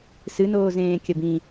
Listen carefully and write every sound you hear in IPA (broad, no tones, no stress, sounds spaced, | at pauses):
s ɨ n oː z ẽː kʲ ɐ b ĩ